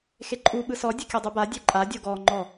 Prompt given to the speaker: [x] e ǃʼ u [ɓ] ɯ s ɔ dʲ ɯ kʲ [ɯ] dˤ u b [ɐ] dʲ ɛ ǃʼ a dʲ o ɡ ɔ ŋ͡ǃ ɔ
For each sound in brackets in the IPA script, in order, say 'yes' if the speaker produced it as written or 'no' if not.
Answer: yes, yes, no, no

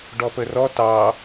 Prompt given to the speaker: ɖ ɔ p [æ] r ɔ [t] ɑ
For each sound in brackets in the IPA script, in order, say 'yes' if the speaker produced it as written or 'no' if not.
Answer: no, yes

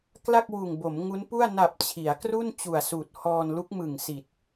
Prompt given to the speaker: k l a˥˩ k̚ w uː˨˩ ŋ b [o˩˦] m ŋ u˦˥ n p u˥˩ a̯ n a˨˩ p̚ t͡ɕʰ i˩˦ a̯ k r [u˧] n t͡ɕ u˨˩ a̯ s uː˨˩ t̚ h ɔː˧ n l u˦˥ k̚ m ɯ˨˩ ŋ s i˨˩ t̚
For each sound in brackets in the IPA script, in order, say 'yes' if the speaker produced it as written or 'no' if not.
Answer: yes, no

